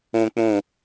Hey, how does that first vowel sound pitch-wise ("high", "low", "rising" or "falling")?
low